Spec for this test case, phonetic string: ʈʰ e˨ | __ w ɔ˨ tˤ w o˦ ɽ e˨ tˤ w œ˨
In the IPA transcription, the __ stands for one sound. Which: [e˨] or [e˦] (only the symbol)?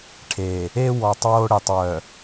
e˦